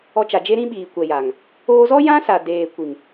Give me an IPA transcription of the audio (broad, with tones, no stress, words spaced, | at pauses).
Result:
ɔ˧t͡ʃa˨ d͡ʒe˧ɾĩ˧ ɓiː˨kʷɛ˨ja˨ŋ | oː˧zɔ˦ jã˦sa˨ deː˨kʷi˨ŋ